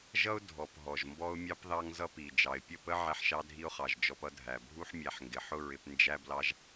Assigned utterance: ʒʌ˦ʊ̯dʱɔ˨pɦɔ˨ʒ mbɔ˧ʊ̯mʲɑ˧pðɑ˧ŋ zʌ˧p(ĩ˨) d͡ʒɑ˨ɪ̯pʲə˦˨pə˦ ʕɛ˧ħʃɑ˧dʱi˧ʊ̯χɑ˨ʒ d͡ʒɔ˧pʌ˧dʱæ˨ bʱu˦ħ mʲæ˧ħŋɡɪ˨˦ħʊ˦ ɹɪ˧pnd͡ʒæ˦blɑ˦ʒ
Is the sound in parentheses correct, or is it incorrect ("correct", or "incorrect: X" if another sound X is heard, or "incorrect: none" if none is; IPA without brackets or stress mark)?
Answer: incorrect: i˨